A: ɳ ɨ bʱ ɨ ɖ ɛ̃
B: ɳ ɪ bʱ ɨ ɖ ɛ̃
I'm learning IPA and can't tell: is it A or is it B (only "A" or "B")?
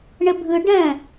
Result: B